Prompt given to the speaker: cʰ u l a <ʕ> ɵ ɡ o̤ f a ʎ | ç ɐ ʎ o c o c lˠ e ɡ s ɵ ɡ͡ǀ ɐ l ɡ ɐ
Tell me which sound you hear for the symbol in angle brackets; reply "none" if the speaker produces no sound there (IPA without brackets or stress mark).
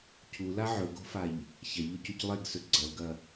ʕ